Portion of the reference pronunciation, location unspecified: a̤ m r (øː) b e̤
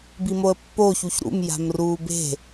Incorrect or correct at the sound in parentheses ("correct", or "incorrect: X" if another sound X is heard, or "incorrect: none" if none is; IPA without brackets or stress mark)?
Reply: incorrect: uː